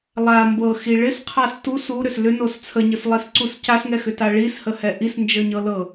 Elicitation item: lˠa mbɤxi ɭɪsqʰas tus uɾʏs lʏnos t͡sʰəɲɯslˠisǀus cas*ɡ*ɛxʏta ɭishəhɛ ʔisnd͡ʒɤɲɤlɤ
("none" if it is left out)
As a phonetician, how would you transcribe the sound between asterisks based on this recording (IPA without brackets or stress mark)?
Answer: ŋ